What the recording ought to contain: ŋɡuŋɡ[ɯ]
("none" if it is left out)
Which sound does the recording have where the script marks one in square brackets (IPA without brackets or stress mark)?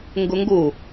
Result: u